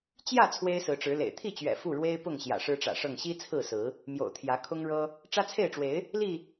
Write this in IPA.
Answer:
t͡ɕ j ä˥˨ t͡sʰ w e˦ ɪ̯ s ɹ̩˨˦ ʈ͡ʂ ɻ̩˨˦ l ḛ˨˩ ɪ̯ t̪ʰ i˥˨ t͡ɕ ɥ ɛ̰˨˩ f u˥˨ ɻ w e˦ ɪ̯ p ʊ˥˨ ŋ ɕ j ä̰˨˩ ʂ ɻ̩˦ ʈ͡ʂ ä̰˨˩ ʂ ɤ˥˨ ŋ ɕ i˦ t͡sʰ ɹ̩˥˨ s ɹ̩˨˦ | m j o̰˨˩ ʊ̯ t̪ʰ j ä˨˦ kʰ ʊ˦ ŋ ɻ ɤ˦ | ʈ͡ʂ ä˦ t͡sʰ e˥˨ ɪ̯ ʈ͡ʂ w e˨˦ ɪ̯ | l i˥˨

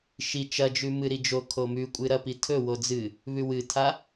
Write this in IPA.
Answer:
ʃ i t͡ʃ ɐ d͡ʒ ʉ m ɨ ɾ i d͡ʒ o kʰ o m ʉ kʷʼ ɨ ɾ ɐ p i tʰ ɵ w o d͡z ɨ | β ʉ w ɨ tʰ a

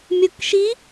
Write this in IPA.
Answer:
mʲ o k ʃ i

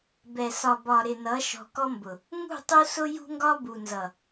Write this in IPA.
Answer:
b ɛ˨ s ɒ˨ b ɒ˨ ɾ ɪ˨ n ʌ˨˦ ʃ ɔ̤˨ k ɔ˦ m b ʊ˨ | ŋ ṳ˦˨ tˤ u˦ s ʊ˦ j ṳ˦ ŋ ɡ ɒ˦ b u˨ n z ʌ˨

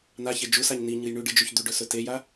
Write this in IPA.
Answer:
n̪ a ç e d͡ʒ u s a ɲ n i ɲ ɨ j ɳ ʉ ɖ ɨ d͡ʒ ʉ ç d̪ ʉ ɖ ɵ s ɵ t e j a

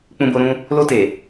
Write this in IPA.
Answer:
k͡p ũ˧ b o˧ ɾ ũ˦ | l o˧ t e˨

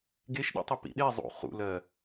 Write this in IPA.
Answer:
ɡ e ʃ ɗ ḭ tˤ i p ḭ ɗ e zˤ ṵ χ ṵ l ɜ

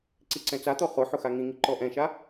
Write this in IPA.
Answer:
ǀ i ǀ ɛ̃ t͡s a t̪ ɔ χ ʊ ħ ʊ x a ŋ ĩ ŋ i ǃ ɔ ʔ ɛ̃ ʃ a

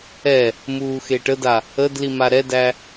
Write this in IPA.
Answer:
ɛ | m uː x e ʈ ə d a | ə d l i m a ɾ ɛ d æ

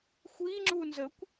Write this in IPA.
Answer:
xʷ i ŋ͡ǁ u n z ə kʷ

